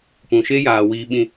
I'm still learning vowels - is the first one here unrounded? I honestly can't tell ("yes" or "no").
no